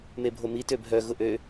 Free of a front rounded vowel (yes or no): no